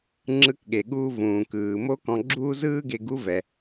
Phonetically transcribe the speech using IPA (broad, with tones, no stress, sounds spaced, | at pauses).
ŋ͡ǁ ɯ˧ k ɠ e˩ ɠ uː˧ v ũː˩ k ɯː˩ m o˥ k ɔ̃˧ ɡ͡ǁ uː˥ z ɯː˥ ɡ e˧ ɡ u˥ v ɛ˩